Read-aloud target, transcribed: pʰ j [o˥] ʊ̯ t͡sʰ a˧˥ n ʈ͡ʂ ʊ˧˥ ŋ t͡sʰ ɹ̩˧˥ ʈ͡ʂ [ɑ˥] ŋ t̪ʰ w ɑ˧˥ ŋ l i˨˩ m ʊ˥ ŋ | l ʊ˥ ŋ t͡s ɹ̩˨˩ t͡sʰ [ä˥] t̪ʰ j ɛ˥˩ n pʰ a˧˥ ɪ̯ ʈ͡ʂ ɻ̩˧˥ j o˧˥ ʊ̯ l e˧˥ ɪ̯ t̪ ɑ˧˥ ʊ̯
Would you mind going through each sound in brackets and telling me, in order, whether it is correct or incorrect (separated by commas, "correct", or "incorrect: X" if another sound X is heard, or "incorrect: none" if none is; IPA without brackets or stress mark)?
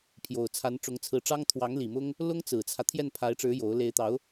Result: incorrect: o˨˩, correct, incorrect: ä˦